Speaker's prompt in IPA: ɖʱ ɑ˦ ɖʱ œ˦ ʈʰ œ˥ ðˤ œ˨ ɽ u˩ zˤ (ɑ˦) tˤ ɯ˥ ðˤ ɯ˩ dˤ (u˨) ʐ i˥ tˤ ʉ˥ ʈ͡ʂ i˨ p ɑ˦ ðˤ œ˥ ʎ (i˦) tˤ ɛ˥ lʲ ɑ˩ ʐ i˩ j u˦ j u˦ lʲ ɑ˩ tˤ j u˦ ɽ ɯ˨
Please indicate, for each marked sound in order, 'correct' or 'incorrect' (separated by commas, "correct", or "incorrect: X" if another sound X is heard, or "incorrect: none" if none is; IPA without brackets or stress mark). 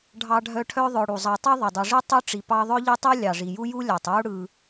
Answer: incorrect: ɑ˨, correct, correct